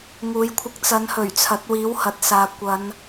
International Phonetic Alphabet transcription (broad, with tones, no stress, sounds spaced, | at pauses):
ŋ uː˨˧ j kʷʰ ɪ˧ k̚ t͡s ɐ˨˧ n h ɵ˨˩ ɥ t͡sʰ ɐ˨˥ t̚ w iː˨˥ w h ɐ˨ t̚ s aː˨ kʷ ɐ˨˧ n